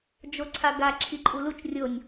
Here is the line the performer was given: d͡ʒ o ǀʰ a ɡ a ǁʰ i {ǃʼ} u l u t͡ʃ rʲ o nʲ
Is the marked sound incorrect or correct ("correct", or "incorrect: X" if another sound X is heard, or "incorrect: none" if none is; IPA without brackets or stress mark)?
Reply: correct